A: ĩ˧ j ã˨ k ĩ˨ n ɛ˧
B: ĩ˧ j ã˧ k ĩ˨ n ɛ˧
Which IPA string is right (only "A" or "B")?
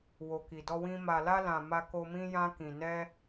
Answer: B